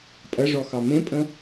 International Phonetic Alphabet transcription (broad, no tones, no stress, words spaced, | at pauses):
pʼɐʐɔ xɑmẽpʼə̃